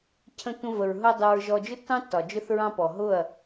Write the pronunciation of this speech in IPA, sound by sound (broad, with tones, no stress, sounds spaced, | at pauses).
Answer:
cʰ ə̃˧ tʷ ə̃˧ v ə˨ ɹ ɦ ʊ˧ dˤ ʊ˧ ɹ ʒ ɔ˧ d͡ʒ ʊ˦ tː ɑ̃˦ tː ɒ˨ d͡ʒ ʊ˦ θ ɹ ɑ̃˧ p ɔ˨ ɦ ʊ˦˨ ɐ̯